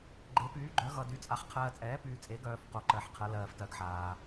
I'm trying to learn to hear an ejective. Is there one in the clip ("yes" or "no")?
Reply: yes